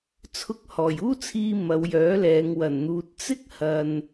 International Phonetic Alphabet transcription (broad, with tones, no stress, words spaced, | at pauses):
t͡sʰʊ˧k̚hɔː˨˩juː˥t͡sʰiː˧ mɐ˨˧wjœː˨˥lɛː˨˧ŋ wɐ˨˩nn̪uː˨t̚ t͡sɪ˥k̚ hɐ˨n